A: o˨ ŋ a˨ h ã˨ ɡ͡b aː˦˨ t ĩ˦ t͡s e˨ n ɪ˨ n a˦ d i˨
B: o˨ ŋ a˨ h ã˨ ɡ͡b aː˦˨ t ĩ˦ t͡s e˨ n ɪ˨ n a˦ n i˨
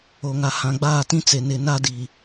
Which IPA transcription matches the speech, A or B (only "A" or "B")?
A